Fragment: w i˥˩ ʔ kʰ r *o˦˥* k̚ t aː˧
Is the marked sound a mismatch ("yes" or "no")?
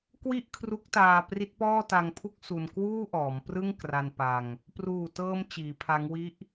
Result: yes